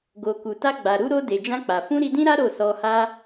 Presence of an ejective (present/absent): absent